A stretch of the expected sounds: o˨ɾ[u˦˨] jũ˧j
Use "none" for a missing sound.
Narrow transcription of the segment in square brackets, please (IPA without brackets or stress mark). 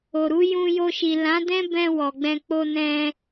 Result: u˨˦